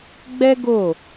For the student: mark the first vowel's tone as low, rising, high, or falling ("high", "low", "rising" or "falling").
high